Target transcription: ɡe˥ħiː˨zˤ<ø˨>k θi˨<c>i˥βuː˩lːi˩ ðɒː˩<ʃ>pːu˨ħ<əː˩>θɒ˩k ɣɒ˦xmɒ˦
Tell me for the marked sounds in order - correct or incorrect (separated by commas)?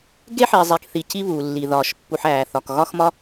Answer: incorrect, correct, correct, incorrect